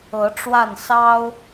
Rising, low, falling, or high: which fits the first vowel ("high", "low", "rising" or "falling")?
rising